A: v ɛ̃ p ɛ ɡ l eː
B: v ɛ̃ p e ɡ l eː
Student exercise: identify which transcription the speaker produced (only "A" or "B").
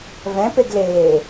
B